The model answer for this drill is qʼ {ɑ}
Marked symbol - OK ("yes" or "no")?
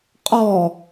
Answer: no